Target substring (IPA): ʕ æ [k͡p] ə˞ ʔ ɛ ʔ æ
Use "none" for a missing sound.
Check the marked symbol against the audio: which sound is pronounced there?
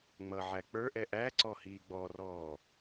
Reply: k͡p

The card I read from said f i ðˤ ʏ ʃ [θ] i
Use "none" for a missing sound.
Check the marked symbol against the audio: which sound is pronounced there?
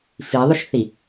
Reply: θ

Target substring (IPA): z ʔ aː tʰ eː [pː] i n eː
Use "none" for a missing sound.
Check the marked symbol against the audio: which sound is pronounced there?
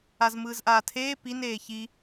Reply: p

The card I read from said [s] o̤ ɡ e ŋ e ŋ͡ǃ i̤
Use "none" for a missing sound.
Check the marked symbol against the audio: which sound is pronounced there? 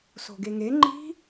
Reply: s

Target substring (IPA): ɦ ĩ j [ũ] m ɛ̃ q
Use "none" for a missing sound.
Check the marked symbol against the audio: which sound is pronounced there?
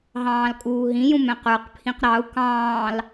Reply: ũ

